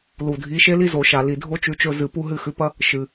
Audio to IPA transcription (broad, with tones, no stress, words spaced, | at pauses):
lu˨˩dʱi˨˥ʃe˥li˥ zo˧˩˧ʃa˨˩ li˨˩dʱo˥t͡ʃʉ˨˥t͡ʃɵ˦˨ zɨ˧˩˧pu˥ ɦɨ˦˨xʉ˨˥pɐ˥ | ʃɨ˨˩